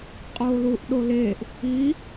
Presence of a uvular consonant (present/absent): present